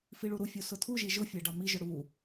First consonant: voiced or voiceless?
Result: voiceless